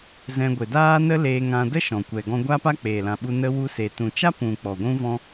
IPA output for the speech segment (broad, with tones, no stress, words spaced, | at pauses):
zɛ̃˧ɡʷe˨daː˦ nə˦leː˧ŋã˧ də˦ʃɔ̃˨kʷɛ˨ ɡɔ̃˧ɡʷa˦pa˦ k͡peː˨lã˨ɓu˧ nə˦wu˦se˧ tũ˨t͡ʃa˦pũ˨ k͡pɔ˨ɡʷũ˦vɔ̃˦